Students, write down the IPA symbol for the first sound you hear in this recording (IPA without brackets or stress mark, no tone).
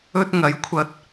ɵ